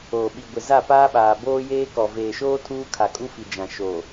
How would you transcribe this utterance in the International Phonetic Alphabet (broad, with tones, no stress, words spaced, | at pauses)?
oː˨ɓi˨ ɡʷɪ˨za˦˨paː˦ɓaː˨ boː˦jeː˦ kɔ˨ veː˨ʃoː˦ tʰuː˦kʰa˨kʼu˦fi˨ d͡ʒã˨ ʃo˨